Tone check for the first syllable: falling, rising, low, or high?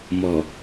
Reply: low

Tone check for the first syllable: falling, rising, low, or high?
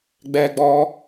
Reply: high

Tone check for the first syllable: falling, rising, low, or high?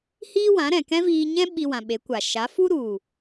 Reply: high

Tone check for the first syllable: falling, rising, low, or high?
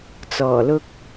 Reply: low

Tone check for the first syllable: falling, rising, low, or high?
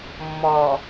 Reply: low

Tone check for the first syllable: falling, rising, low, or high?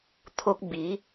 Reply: high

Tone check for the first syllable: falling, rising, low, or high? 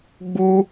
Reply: high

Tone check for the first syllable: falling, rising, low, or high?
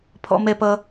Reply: high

